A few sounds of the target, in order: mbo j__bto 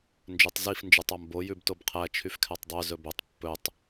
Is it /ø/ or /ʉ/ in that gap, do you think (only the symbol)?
ʉ